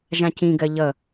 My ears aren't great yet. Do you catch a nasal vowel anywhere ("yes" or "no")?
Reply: yes